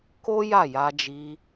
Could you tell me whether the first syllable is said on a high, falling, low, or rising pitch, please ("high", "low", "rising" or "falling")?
high